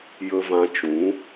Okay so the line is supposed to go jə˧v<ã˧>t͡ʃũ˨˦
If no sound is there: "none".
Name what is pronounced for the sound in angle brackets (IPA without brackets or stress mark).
ã˧